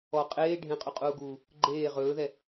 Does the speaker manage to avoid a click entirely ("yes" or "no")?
no